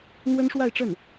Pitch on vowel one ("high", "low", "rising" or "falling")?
high